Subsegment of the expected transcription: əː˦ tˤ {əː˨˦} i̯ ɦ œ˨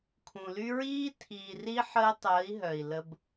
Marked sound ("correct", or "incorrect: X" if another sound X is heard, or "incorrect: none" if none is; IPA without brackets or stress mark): correct